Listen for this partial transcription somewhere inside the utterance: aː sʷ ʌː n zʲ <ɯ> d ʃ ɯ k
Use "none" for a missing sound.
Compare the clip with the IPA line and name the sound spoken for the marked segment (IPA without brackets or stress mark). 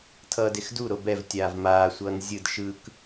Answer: ɯ